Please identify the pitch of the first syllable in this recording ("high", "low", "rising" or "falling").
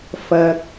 low